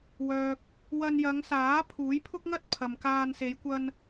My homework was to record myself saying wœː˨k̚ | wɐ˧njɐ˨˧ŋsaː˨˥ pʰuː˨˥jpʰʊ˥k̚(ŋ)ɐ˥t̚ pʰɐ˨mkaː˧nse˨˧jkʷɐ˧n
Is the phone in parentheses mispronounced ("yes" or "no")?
no